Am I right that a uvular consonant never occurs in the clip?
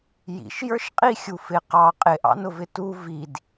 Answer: no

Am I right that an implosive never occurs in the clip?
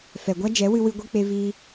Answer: yes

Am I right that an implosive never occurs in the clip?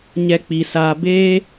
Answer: yes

